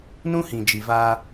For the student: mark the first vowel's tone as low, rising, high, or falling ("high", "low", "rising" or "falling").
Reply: high